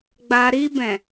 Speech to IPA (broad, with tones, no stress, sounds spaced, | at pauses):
ɡ͡b a˨ ɾ i˧ b ɛ̃˨